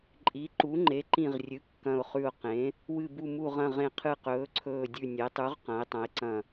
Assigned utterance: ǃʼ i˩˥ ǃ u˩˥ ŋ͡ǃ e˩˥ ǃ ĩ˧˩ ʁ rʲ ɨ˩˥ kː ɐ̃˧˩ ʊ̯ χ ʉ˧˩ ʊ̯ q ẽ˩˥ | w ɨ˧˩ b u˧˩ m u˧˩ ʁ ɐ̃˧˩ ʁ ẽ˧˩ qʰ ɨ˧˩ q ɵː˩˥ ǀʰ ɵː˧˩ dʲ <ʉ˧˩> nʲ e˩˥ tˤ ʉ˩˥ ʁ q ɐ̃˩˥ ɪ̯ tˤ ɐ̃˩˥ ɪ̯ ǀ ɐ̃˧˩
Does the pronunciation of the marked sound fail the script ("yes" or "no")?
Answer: no